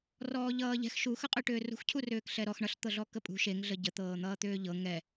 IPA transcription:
r ɔː ʎ ʌː ʎ ɛ̤ x ʃ u x ə qʼ ʏ ʈ ʏː r ṳ x cʰ u r ʏː k ɬ ɛ ɾ ɔ x ɳ ʌ ɬ t̪ ɤ ɮ ɔ k ə pʼ ṳ ʃ e ŋ ɮ ə ɟ ə t̪ ɤː n̪ ʌː t̪ ʏː ʎ ɤ ŋ ɛ

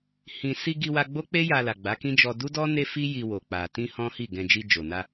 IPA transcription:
h ĩ˨ s i˧ ɡ i˧ w a˧ ɡ͡b o˦ k͡p e˦ j a˧ l a˨ ɡ͡b a˨˦ k ĩ˦ d͡ʒ ɔ˧ d u˦ d ɔ˦ n e˦ f i˦ j i˧ w o˨ k͡p a˨ t ĩ˧ h ɔ̃˦ h i˦˨ ɡ ɛ̃˧ d͡ʒ i˧ d͡ʒ o˨ n a˧

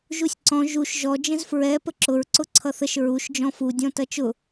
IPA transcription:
ʒ u sʲ ǀ ɔ̃ ʒ u ʃ ʒ ɔ d͡ʒ ə̃ z f ɹ ɛ p ə ǁ ʊ ɹ ǀ ʊ ǀʰ ʌ θ ə ʃ ɹ u ʃ d͡ʒ ɔ̃ f u dʲ ɔ̃ t ʌ t͡ʃ ʊ

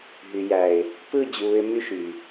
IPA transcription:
ɦ y˨ j æ˨ ɪ̯ | p ɯ˦˨ d͡ʑ uː˨ ɪ̯ m y˦˨ ʃ y˨

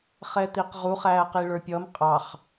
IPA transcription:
χ ɛ t̪ i q ʁ u χ æː q i ɭ ə˞ pʲ ʌ m qʼ ɑ χ

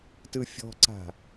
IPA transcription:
t ɯ fʲ ɔ̤ ǀ a̤

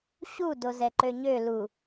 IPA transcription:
ɕ u d o z ɛ ǃ ø ɲ ø l u

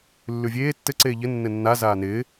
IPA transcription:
lː ʉ vʲ eː tː ɘ ǀ eː ʎ ɘ nː ɘ nː a z aː n ɪː

